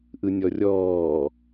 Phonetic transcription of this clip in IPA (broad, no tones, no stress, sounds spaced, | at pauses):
ʔ ɯ nʲ ɔ rʲ ɔː